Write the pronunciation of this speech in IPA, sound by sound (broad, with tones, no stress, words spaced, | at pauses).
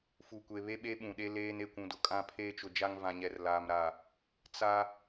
fu˨kʷe˨ βe˦ɓe˦ɓũ˨ɗe˦ leː˦n e˨ kʷũ˨dʊ˨kʼã˦˨ pʰeː˦t͡ʃʊ˨ d͡ʒa˦ŋvã˨ɲɛ˨rlaː˨m ɾa˨ | t͡sa˦